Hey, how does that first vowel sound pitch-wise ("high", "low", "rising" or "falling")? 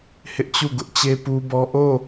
high